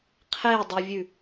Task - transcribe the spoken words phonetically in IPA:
qʰ e dˤ u vʲ ʉ

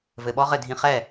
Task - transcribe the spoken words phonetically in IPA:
v ɘ˨ ɓ ɔ˦˥ ʁ ɘ˥˩ dʱ ĩ˧˥˧ χ ɛ˥˩

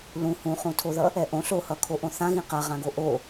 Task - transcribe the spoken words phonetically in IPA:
l ũ h ũ χ ũ tʰ o ð ʌ | ɛ ʔ õ ɬ o h ʌ kʰ o ʔ õ θ ã ɣ ĩ q a ʁ ã ɡ o ʔ o

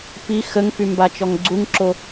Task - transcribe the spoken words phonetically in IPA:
p i x ə ŋ f y m b a t͡ʃ ɔ ŋ ɡ͡ǀ u ŋ ǁ o

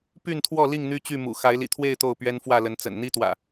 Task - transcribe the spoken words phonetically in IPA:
p y˥˨ n t̪ʰ w ɔ˥˨ l i˥˨ ŋ n̪ y˦ t͡ɕ y˥˨ m ṵ˨˩ x a˨˦ ɪ̯ l ḭ˨˩ t̪ʰ w e˥˨ ɪ̯ t̪ o˥˨ ʊ̯ p ɥ ɛ˦ n f w ä˥˨ l ə˨˦ n t͡s ə̰˨˩ n n̪ i˦ t̪ w ä̰˨˩

